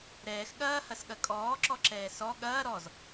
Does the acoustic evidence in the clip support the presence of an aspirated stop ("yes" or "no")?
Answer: no